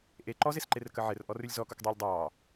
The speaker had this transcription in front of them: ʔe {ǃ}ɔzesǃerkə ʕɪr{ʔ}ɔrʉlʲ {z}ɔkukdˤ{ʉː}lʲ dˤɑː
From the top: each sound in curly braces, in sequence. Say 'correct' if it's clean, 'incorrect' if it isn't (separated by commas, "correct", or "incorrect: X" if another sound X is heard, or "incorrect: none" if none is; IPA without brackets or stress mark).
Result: correct, correct, correct, correct